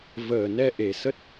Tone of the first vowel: low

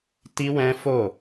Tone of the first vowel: high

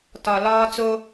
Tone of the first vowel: low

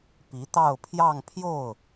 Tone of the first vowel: rising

